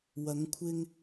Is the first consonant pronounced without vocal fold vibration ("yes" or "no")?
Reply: no